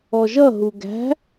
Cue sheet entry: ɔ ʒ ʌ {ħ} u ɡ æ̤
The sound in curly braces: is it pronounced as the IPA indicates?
no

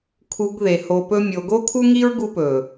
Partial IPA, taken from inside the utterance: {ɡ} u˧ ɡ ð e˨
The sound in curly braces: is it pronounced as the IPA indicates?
no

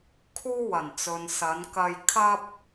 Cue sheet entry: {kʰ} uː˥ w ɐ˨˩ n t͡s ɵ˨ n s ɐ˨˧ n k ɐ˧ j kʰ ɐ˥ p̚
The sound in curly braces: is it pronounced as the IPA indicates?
yes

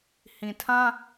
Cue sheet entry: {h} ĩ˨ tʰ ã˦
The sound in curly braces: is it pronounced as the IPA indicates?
yes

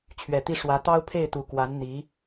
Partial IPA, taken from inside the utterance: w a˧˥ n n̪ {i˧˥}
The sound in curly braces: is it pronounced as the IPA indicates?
yes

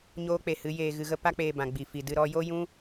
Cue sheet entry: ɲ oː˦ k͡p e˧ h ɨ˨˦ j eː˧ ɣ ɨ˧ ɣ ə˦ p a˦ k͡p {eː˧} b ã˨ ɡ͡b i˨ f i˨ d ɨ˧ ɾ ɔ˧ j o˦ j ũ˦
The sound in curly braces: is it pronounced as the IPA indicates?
yes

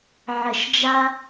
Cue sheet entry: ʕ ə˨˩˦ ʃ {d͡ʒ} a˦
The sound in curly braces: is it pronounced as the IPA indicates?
yes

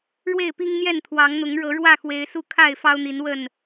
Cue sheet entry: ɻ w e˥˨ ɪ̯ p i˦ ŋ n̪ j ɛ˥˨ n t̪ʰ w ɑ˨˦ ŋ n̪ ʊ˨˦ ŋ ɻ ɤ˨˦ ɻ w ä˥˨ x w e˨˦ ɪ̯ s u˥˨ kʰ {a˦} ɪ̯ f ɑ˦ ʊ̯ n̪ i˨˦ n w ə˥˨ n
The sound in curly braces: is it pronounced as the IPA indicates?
no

